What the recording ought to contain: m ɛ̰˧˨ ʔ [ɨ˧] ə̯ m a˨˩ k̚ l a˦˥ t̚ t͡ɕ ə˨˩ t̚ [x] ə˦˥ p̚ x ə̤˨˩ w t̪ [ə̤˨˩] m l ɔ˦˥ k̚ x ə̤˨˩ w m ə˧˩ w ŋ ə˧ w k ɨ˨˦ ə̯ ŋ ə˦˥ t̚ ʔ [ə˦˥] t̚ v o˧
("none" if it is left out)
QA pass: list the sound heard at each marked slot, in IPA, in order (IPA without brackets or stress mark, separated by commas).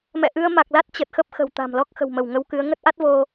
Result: ɨ˧, x, a̤˨˩, a˦˥